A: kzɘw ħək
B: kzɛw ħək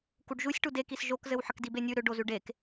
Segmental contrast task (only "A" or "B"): A